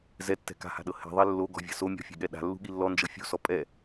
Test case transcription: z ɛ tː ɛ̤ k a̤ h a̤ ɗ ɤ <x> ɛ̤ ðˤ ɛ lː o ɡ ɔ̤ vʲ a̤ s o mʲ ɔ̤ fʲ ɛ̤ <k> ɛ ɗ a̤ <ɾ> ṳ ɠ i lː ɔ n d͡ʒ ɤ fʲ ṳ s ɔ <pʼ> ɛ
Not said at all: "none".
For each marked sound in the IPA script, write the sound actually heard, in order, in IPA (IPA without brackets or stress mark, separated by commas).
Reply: h, ɠ, lː, pʼ